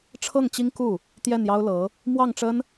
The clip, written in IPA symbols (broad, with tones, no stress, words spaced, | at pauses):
ʈ͡ʂʰɤ˥˩ŋt͡ɕi˥ŋ ku˥˩ | t̪jɛ˥˩njɑ˥ʊ̯lɤ˧˥ | mwɑ˥˩ŋʈ͡ʂə˥n